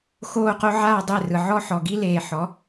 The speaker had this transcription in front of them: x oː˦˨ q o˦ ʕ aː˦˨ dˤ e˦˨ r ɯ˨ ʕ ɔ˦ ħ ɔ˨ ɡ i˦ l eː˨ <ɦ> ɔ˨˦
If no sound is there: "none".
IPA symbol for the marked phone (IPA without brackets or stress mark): ħ